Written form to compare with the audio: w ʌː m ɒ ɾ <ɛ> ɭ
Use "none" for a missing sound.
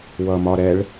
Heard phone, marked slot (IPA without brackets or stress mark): ɛ